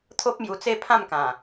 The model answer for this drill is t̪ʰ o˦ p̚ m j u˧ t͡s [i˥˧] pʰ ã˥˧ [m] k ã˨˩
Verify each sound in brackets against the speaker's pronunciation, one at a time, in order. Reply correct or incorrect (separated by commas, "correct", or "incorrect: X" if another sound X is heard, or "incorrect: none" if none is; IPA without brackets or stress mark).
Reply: incorrect: e˥˧, correct